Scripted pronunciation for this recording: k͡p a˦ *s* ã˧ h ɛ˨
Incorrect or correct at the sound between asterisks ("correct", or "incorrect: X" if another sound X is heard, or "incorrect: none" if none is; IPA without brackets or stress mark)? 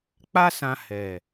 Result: correct